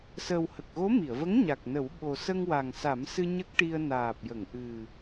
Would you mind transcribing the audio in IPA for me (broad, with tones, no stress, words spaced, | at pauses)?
sə˨˩whə˨˩k̚ɣo˧˥ mi˨˩˨ə̯və˧˥ŋ ɲa˨˩k̚nə˨˩˦w ɓo˨˩sə˧ŋ wa˨˩ŋsa˨˩˦msɨ˧ ɲə˦˥k̚ʈi˧ə̯ naː˨˩p̚jə˨˩˨ŋʔɨ˨˩